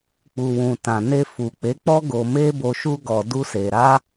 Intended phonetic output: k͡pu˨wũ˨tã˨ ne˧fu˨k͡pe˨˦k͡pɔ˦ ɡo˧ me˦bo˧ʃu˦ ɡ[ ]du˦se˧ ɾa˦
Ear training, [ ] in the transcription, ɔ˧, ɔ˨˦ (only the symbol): ɔ˧